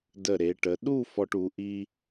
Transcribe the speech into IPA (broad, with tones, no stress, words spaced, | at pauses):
də˧˩ɾe˩˧ʈə˩˧ ɗu˥˧ fɔ˧ʈu˩˧ ʔi˧